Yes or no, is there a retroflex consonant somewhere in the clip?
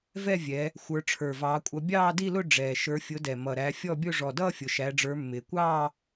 yes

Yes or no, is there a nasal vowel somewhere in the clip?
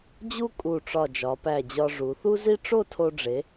no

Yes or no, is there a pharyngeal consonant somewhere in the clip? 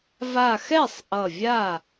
no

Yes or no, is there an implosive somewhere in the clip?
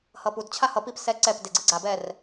no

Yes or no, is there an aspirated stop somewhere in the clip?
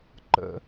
no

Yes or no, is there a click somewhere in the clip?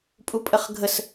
no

